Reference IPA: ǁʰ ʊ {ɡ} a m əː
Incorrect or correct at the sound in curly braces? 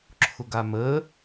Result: correct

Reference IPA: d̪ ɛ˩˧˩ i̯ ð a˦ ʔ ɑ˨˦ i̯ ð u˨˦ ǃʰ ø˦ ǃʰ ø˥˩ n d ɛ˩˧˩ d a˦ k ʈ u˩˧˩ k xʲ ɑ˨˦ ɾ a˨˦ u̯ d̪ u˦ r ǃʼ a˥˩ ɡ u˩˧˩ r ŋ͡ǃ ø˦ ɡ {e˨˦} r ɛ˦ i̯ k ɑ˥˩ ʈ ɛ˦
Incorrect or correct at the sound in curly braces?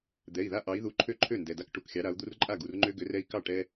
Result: incorrect: ø˨˦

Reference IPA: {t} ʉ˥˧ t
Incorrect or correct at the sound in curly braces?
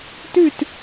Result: correct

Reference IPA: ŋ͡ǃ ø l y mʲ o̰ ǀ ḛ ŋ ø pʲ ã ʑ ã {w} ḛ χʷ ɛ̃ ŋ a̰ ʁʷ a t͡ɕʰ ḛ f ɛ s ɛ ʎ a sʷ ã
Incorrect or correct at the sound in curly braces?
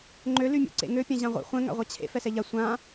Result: incorrect: ʁʷ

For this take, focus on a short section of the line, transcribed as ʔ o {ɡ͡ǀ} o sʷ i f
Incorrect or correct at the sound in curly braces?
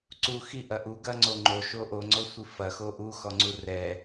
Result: incorrect: ŋ͡ǀ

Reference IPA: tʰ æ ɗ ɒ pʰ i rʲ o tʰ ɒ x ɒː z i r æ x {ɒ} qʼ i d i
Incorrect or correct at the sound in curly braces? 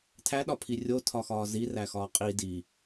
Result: incorrect: ɒː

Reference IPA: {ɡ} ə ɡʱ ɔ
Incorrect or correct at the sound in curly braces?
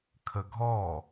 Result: incorrect: kʰ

